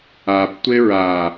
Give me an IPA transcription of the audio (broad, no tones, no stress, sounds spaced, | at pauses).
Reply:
a p tʷ e ɹ a